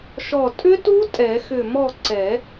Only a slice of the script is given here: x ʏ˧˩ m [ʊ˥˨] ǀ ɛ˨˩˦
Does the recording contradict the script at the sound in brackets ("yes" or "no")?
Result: yes